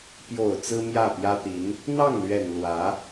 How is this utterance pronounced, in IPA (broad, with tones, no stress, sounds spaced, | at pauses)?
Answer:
p j o˨˩ ʊ̯ t͡s ɹ̩˥ m j ä˥˩ p j ä˥ t̪ i˧˥ n | n̪ ɑ˥˩ ŋ l ɥ ɛ˨˩ n l w ä˧˥